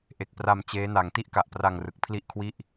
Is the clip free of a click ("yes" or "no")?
yes